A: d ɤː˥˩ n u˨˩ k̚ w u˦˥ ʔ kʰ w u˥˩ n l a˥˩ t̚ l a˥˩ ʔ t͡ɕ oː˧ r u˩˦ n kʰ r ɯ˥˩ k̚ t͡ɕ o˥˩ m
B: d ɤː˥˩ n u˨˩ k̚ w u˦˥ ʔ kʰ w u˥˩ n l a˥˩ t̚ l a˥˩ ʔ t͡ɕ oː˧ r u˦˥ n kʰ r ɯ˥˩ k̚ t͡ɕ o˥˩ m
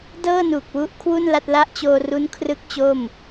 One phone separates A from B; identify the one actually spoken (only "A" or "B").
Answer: B